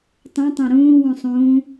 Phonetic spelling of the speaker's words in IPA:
tˤ õ tˤ õ ɾ ũː w ũ sˤ ũː

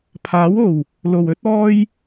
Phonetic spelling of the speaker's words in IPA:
pʰ aː˨˥ w o˨˩ w | l o˨˩ w ɵ˥ t̚ ɔː˥ j

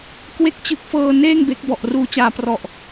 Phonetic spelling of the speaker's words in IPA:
k w e˦˥ k̚ t͡ɕ ɯ˨˩ k̚ f ɤː˧ n eː˥˩ ŋ b e˦˥ k̚ b ɔ˨˩ ʔ r uː˧ t͡ɕ aː˧ p r ɔ˨˩ ʔ

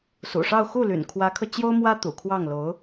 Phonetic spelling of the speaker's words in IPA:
s ṵ˨˩ ʂ ɑ˥˧ ʊ̯ x u˥˩ l y̰˨˩ n kʰ w ä˧˥ kʰ ɤ˧ t͡ɕ j o˥ ʊ̯ m w ä˥ t̪ ṵ˨˩ kʰ w ɑ˥˩ ŋ l o˧˥ ʊ̯

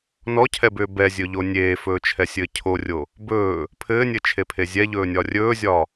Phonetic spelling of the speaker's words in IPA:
n ɔ cʰ ɛ b ʏː b ɛ zʲ ɵ ʎ o nʲ eː f ɵː t͡ʃʰ ɛ sʲ ɘː cʰ o rʲ o | b ɵː | pʰ ɘː nʲ ɘ t͡ʃʰ e pʰ e zʲ ɛ ʎ ɵː nʲ ɒ rʲ ɵː zʲ ɒ

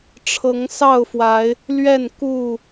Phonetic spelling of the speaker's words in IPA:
ʈ͡ʂʰ ɤ˨˦ ŋ s ɑ˥˨ ʊ̯ f w a˨˦ ɪ̯ | l ɥ ɛ˥˨ n k u˥˨

